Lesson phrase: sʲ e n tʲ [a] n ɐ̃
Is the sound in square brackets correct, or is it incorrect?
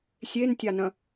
correct